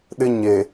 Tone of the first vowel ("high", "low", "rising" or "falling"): high